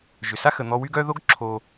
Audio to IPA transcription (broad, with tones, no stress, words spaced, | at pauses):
ʒʏ˩sa˥xə˩ n̪ɔ˦wy˥ɡœ˥ ðo˥ɡǁʰo˨